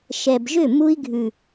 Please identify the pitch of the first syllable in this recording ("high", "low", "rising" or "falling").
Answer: low